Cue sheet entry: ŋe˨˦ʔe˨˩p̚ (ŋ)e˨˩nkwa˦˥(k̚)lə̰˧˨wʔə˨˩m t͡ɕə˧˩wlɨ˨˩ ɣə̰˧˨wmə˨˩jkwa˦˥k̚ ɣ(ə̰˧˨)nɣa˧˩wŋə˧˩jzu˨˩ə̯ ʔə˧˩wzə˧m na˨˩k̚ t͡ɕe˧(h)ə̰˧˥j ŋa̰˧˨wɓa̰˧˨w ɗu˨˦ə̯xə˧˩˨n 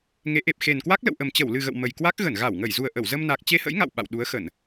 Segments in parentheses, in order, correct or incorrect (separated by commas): incorrect, correct, incorrect, correct